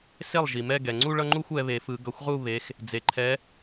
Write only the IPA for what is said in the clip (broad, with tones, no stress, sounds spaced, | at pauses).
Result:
s e˥˩ lˠ ʒ i˩ m ɛ˥˧ ɡ ɛ˩ ŋ͡ǀ u˥˧ ɭ ʌ˥˧ ŋ͡ǃ u˥˧ xʷ ɛ˨˦ β e˨˩˦ f ɯ˨˩˦ ɡ ʌ˨˦ xʷ ʁ u˥˧ β e˨˦ x | d͡z e˩ ǃʰ ɛ˨˦